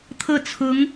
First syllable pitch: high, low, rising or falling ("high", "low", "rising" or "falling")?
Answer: falling